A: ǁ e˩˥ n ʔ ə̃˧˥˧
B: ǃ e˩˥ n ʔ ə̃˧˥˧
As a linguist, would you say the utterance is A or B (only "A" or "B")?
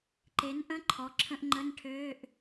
B